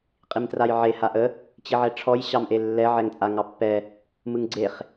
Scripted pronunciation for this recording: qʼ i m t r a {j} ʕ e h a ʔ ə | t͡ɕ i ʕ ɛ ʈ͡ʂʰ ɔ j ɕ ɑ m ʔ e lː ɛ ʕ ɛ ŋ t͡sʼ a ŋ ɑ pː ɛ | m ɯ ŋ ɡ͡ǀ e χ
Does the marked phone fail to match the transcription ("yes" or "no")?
no